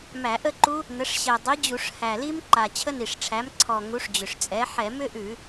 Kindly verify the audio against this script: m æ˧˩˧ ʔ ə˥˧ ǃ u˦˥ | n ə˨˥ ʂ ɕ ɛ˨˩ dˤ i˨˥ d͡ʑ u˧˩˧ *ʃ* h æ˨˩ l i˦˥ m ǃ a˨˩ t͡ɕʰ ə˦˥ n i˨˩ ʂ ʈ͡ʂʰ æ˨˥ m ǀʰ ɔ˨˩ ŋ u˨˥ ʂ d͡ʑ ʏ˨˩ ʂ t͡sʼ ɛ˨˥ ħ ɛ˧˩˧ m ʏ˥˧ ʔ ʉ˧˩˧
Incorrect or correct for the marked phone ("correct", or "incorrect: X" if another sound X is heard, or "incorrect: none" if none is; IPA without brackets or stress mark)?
incorrect: ʂ